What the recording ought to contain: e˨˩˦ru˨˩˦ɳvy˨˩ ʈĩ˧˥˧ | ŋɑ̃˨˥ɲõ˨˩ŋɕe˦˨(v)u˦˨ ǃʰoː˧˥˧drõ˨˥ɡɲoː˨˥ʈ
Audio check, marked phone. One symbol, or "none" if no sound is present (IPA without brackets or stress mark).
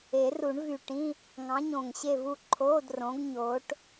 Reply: v